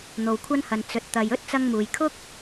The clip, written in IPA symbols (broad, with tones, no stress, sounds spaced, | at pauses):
n̪ o˨ w kʷʰ ɐ˥ n h ɐ˨ n t͡s ɵ˨ t̚ t̪ ɐ˨ j ɵ˥ t̚ t͡s ɐ˧ ŋ m uː˨ j kʰ ʊ˥ k̚